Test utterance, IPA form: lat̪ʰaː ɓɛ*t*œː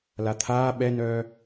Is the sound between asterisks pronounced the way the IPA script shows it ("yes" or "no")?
no